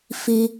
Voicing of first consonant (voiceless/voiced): voiceless